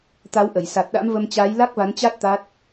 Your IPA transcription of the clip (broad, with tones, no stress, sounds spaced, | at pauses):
t̪ a˨˦ w ʔ ə˧˩ j s a˨˩ t̚ ɗ a̰˧˥ m v ə˧ m t͡ɕ aː˨˦ j l a˦˥ k̚ v a˨˦ n t͡ɕ a˦˥ t̚ t̪ a˦˥ t̚